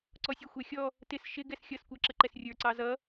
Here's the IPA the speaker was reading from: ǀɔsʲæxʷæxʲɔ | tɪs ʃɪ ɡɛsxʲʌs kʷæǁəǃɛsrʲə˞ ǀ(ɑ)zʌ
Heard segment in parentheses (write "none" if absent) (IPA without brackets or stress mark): ɑ